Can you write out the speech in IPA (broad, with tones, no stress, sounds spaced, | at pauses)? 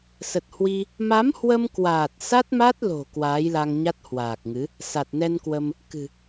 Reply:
s ə˨˩ t̚ h w i˧ | m a˨˦ m h w ə˧ m k w aː˨˩ t̚ s a˦˥ t̚ m a˦˥ t̚ l o̤˨˩ k w aː˨˦ j l a˧ ŋ ɲ a˦˥ t̚ h w aː˨˩ k̚ ŋ ɨ˨˦ | s a˨˩ t̚ n ɛ˧ n k w ə˧ m | k ɨ̤˨˩